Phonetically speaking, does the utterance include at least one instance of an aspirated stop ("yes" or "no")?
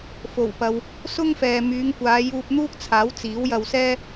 yes